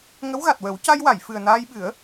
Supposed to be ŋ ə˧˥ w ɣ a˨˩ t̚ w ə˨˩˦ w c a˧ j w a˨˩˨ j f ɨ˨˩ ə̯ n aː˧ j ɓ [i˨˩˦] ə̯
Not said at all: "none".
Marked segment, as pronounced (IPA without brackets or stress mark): ɨ˨˩˦